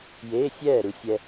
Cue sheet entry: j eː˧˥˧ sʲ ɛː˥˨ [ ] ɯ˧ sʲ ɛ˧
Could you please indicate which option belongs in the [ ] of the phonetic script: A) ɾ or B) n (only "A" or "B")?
A